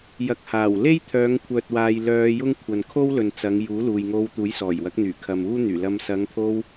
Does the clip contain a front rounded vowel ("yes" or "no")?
yes